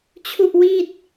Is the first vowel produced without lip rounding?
no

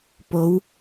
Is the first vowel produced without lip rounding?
no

